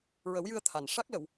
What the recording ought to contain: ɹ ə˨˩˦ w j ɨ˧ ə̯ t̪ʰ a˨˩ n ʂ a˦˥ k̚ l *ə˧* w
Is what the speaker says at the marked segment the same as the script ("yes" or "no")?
no